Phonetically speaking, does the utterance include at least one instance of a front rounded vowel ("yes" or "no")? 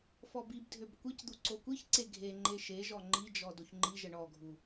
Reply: yes